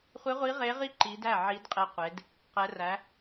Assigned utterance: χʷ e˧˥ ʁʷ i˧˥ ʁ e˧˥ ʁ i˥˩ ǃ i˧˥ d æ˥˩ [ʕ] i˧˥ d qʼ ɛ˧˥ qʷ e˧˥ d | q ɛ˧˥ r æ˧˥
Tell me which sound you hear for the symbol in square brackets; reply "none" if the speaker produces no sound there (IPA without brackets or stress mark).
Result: ʕ